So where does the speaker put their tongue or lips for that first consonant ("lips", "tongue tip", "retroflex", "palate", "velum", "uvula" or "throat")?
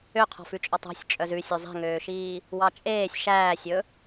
uvula